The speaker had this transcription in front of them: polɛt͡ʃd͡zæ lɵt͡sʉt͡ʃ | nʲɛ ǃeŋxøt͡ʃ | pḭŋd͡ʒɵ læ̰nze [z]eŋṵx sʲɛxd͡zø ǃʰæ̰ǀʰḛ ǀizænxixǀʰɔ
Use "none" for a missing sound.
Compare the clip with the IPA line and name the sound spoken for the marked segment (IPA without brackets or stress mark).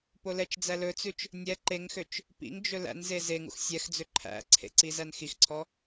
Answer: z